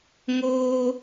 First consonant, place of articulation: velar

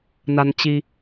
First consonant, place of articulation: alveolar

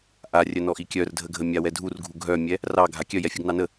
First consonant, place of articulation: glottal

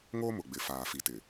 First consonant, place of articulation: velar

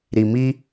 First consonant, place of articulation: alveolar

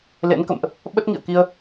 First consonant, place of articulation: alveolar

